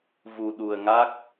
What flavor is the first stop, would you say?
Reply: implosive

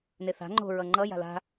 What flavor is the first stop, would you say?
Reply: click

